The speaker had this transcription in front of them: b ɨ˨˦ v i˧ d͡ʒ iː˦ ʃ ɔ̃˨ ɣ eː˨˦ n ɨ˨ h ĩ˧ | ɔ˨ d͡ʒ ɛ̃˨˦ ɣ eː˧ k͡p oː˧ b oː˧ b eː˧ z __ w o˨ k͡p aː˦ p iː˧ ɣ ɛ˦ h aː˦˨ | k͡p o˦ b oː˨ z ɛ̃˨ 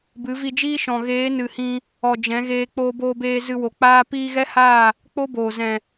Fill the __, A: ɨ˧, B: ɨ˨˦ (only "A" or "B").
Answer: A